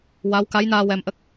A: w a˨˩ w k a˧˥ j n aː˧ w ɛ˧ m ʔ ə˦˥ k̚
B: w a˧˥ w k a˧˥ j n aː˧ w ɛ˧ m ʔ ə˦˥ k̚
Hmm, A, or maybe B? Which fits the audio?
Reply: B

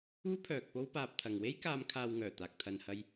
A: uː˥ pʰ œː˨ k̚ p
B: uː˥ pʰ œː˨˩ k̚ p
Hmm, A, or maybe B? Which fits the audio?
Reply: A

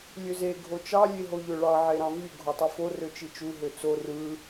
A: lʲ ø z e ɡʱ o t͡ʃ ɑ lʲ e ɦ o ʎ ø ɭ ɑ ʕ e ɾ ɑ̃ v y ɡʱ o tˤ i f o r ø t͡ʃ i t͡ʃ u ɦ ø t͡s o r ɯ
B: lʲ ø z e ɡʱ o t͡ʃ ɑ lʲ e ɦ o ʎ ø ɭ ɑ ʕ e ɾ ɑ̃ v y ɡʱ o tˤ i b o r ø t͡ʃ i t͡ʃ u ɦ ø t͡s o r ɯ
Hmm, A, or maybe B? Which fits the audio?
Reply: A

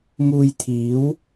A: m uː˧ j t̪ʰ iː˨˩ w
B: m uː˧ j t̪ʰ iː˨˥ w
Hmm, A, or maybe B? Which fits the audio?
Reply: B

